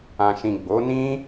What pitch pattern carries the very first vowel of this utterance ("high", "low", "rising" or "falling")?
low